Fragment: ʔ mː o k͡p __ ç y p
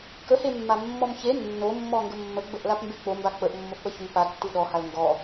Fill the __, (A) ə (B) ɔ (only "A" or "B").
A